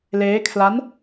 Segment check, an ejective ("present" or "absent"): absent